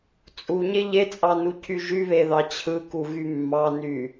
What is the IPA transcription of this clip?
t͡sʼ u ɲ e ʎ e t͡sʼ ɑ n u cʰ y ʒ y β e ð ɑ t͡ɕʰ ɯ k u ɣ y mː ɑ n y

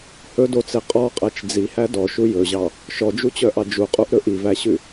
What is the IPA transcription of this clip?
h ɵ d o t͡s e qʼ ɔ qʼ æ t͡ʃ d͡z i h æ d ɔ ʃ u j ɵ ʑ ɑ | ʃ ɔ d͡ʒ u t͡ɕ œ ʔ ɑ d͡ʒ u qʼ u ʔ ɾ ɵ ʔ i v æ ɕ ʉ

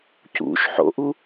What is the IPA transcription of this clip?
c ṵ ʃ ħ o̰ ʔ u

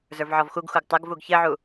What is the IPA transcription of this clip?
z ə˞ v ʕ ɔ v x u ɡ x u ɡ tˤ ə ɡ v u ɡ ç ɘ ʕ u

